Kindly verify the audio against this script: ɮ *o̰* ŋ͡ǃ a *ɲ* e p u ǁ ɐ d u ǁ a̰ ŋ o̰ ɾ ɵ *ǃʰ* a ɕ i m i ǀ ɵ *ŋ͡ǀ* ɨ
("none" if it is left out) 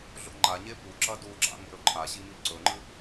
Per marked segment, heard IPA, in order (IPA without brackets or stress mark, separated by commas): o̰, ɲ, ǃʰ, ŋ͡ǃ